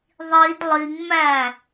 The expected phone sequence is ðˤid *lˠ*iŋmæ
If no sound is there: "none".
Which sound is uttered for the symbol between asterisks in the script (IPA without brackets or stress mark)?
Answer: lˠ